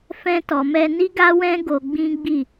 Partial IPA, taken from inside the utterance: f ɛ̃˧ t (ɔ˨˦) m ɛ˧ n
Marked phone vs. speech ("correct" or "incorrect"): incorrect